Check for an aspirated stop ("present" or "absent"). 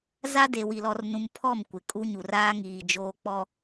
present